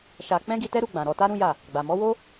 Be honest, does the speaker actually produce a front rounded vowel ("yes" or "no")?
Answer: no